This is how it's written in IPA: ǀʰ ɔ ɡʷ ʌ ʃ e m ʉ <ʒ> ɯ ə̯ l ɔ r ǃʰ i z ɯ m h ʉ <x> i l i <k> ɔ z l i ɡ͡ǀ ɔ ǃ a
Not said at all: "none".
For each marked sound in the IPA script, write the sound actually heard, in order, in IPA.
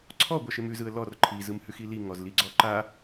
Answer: z, x, ŋ

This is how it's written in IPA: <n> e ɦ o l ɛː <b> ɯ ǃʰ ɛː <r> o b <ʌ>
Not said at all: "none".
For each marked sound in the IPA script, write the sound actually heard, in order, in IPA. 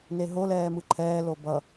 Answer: n, m, l, ʌ

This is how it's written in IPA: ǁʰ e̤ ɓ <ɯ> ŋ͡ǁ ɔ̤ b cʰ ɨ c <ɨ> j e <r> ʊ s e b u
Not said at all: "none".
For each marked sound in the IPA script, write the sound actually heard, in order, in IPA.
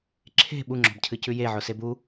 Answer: u, ʉ, ʕ

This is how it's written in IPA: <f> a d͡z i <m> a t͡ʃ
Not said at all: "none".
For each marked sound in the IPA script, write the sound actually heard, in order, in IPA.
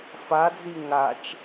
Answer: f, ŋ

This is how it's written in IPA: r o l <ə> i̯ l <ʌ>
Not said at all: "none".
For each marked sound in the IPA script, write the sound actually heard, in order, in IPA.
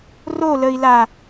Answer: ə, a

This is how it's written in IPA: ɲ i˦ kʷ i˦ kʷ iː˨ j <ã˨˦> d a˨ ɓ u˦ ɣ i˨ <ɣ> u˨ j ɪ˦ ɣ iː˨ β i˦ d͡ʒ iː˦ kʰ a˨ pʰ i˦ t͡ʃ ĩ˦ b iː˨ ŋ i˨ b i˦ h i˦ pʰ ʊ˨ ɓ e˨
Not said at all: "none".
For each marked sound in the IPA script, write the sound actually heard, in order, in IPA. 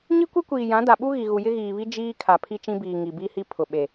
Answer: ã˨˦, ɣ

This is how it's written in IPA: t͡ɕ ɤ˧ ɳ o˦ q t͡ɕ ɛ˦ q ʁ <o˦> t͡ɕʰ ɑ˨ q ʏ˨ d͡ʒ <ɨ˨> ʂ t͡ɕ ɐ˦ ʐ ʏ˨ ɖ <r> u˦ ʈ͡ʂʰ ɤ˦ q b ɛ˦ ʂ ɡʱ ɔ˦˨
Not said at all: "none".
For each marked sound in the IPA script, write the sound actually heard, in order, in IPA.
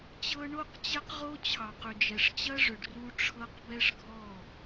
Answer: o˦, ɛ˨, r

